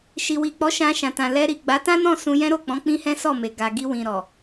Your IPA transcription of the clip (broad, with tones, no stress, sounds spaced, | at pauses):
ʃ i˨ w i˨ k͡p ɔ˨˦ ʃ ã˧ ʃ ã˨ t ã˨ l ɛ˧ ɾ i˨ ɡ͡b a˨˦ t ã˦ n ɔ̃˦˨ s ũ˧ j ɛ̃˦ ɾ o˦˨ k͡p ɔ̃˨˦ k͡p ĩ˦ h ɛ̃˦ s ɔ˦˨ m e˨ ɡ a˨ ɡ i˧ w ĩ˨ ɾ ɔ˨